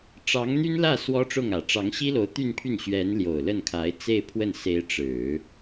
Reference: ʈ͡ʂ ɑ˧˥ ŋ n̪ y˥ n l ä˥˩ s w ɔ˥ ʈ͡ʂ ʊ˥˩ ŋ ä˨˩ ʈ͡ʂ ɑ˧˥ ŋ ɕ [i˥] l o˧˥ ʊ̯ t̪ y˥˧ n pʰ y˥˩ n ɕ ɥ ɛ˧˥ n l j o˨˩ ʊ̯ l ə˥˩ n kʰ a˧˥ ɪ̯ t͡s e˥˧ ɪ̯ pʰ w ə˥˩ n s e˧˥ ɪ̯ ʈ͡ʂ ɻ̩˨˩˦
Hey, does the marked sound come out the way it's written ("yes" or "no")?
yes